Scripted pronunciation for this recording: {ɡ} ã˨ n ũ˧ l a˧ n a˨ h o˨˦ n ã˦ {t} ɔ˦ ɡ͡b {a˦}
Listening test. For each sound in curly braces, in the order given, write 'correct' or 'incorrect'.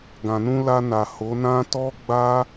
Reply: correct, correct, correct

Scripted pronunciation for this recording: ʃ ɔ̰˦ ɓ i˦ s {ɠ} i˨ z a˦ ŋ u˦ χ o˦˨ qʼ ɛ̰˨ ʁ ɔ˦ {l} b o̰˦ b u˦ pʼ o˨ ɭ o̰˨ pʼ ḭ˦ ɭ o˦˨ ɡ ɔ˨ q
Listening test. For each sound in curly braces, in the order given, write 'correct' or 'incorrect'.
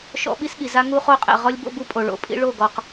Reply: correct, incorrect: lʲ

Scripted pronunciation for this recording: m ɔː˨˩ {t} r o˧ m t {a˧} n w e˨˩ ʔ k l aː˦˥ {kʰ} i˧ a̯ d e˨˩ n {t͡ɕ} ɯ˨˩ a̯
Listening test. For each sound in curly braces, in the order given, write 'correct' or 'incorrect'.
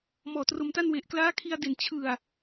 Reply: correct, incorrect: a˥˩, correct, incorrect: t͡ɕʰ

